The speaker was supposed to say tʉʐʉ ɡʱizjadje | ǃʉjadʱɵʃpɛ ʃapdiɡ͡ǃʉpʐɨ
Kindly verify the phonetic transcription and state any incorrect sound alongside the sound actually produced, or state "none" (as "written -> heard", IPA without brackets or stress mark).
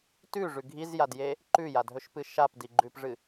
ɛ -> ɨ